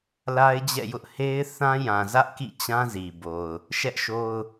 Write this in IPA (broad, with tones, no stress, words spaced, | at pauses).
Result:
la˦ɪ̯d͡ʑɛ̰˦˨jʊ˦ʔ he˦ɪ̯ θã˦jã˨zä˦ʔ kḭ˦˨t͡ɕã˦zi˨bo˨ʊ̯ | ʃɛ˦ʔʃo˦ʊ̯